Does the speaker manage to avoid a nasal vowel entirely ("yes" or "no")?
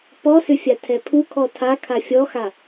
yes